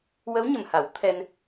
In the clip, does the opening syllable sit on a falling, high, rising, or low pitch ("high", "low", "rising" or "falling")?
rising